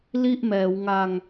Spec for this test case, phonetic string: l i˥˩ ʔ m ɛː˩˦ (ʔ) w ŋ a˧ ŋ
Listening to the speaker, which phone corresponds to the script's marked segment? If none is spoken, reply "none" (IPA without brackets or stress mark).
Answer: none